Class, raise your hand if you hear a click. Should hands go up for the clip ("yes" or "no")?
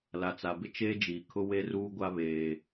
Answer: no